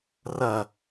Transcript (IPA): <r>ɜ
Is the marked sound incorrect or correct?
correct